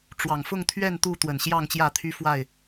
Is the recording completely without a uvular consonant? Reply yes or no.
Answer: yes